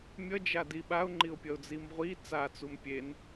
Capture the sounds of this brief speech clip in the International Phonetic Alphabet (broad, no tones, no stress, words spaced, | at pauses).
mʲʌd͡ʒadi ɓaʊ̯ŋ͡ǃiʊ̯pʲʌʊ̯d͡zim ʁʷi t͡sat͡sum pʲen